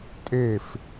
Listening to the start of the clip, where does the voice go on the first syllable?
falling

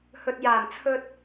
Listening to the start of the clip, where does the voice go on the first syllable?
low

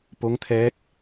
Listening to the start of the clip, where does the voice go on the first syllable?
rising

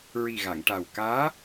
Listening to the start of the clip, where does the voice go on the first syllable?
low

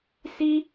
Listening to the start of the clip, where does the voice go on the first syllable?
high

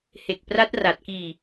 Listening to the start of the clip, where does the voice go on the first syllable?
low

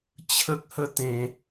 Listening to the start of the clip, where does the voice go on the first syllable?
high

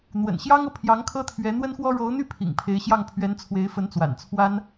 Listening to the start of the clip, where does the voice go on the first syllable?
low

